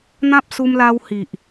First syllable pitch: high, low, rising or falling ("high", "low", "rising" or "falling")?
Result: high